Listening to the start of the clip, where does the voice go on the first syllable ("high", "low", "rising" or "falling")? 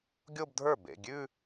falling